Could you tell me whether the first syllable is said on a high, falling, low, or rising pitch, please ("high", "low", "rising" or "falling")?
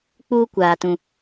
high